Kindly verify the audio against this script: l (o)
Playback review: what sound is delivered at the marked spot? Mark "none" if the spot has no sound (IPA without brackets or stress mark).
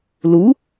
u